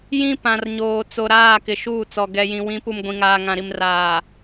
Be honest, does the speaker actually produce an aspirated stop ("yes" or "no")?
no